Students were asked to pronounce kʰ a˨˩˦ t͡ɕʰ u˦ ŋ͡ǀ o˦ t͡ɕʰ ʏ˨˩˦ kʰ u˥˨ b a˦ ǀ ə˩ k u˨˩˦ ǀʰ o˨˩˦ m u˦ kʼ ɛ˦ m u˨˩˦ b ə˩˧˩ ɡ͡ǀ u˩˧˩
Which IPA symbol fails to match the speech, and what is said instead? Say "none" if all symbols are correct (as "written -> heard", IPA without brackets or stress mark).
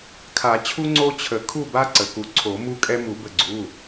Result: ʏ˨˩˦ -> ə˨˩˦